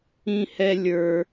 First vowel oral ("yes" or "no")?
no